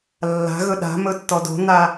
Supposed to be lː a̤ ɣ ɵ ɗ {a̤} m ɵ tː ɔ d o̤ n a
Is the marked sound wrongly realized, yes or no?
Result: no